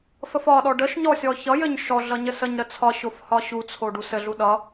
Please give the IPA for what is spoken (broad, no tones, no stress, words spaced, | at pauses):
fəfɒɗɔ ɖəʃ ɲɔsʲɔçʌjɘɲ ʃɔɮʌ ɲɘsəɲɾə t͡sʰɒɕof hɒɕut͡sʰo ɖusɘɮu ɗʌ